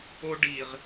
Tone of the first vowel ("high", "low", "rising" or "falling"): high